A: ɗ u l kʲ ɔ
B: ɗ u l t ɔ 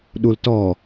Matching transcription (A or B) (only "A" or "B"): B